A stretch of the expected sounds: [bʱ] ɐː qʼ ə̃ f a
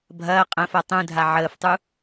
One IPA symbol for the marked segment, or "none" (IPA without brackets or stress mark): bʱ